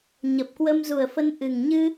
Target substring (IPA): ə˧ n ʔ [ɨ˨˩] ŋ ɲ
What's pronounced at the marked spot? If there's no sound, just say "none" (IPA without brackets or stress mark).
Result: ɨ˨˩